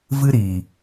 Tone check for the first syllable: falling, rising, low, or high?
high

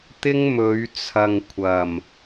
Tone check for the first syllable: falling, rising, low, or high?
high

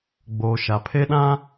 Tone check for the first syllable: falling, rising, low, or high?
low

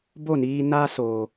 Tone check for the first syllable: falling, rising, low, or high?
falling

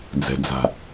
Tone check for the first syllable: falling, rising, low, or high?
low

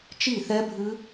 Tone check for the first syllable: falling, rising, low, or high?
falling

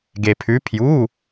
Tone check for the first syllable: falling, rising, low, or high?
low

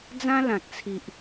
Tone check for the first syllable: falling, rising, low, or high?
high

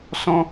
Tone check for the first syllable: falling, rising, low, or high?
high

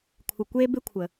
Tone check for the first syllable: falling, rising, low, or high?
low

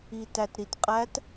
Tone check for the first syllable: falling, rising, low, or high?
low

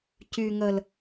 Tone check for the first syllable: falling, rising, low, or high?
low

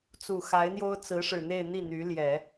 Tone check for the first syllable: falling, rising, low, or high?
low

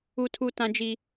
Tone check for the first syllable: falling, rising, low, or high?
high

